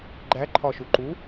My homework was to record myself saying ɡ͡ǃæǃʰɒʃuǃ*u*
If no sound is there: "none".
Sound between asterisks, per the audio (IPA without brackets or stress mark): u